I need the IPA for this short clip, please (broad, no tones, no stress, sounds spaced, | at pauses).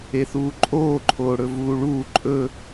e θ uː ǃʼ oː ǃʰ oː ɽ ɵ v uː ɭ uː ǃʼ ɵ